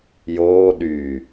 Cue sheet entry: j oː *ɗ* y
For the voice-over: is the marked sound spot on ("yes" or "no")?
yes